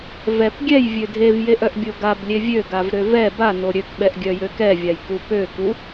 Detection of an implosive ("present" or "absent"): present